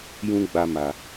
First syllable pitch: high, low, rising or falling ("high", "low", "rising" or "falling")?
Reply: high